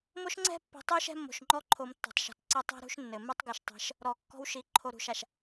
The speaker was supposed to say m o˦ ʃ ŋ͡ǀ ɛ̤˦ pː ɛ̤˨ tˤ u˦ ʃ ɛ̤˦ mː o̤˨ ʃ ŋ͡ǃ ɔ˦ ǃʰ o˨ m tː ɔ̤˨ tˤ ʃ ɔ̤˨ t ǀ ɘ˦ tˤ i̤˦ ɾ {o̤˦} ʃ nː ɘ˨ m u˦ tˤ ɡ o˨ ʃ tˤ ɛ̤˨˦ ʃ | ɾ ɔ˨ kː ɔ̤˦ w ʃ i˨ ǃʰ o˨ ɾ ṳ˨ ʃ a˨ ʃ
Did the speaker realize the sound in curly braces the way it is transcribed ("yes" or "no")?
no